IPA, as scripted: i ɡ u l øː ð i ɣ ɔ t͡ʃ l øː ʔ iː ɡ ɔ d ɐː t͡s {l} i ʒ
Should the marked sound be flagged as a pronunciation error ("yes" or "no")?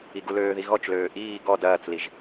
no